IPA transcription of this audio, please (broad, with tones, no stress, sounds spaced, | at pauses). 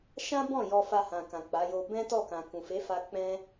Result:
ʃ ã˦ b ɔ̃˦˨ j ɔ˧ f a˧ h ã˨ k ã˨ k͡p a˨˦ j o˧ b ɛ̃˦ t ɔ˦˨ k ã˨ k ũ˨ f e˨˦ f a˧ k͡p ɛ̃˦